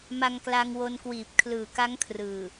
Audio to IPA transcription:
m a˧ ŋ k l a˧ ŋ w o˧ n k w iː˨˩ p̚ kʰ l ɯː˨˩ k a˦˥ ŋ kʰ r ɯː˨˩

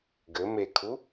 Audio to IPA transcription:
ɡ ɘ m e kʰ u

